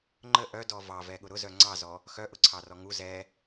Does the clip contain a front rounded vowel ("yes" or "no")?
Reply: yes